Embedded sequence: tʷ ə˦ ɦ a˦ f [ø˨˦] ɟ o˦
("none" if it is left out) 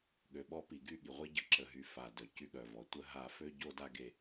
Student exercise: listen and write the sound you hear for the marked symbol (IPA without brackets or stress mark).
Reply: ø˦